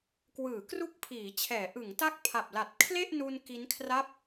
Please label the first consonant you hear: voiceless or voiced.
voiceless